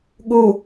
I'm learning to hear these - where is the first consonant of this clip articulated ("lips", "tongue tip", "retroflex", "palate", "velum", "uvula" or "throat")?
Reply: velum